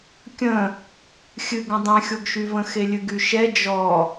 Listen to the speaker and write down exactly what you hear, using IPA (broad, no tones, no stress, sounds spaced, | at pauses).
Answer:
kʲ ə̃ | xʲ ɨ ɡ ə̃ dˤ ɛ̃ xʲ o ɡ ʃ y v ə̃ x e lʲ ɨ ɡ y ʃ ɛ d͡ʒ ɔ